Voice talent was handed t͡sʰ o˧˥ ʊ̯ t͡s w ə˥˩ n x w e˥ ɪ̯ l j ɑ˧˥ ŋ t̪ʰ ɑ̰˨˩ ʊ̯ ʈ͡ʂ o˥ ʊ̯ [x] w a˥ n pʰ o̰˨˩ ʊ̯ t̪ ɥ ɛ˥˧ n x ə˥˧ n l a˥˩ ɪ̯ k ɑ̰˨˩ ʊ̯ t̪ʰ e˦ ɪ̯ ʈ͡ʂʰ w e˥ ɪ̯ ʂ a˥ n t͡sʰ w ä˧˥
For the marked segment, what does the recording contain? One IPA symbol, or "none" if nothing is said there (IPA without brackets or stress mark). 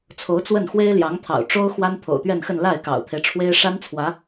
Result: x